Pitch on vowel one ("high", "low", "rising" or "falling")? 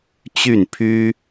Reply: falling